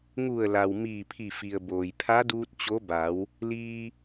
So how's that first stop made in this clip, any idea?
aspirated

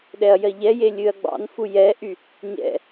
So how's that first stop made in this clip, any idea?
implosive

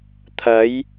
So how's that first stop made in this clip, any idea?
aspirated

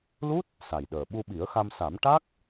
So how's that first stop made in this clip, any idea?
plain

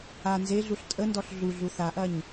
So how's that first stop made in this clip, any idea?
ejective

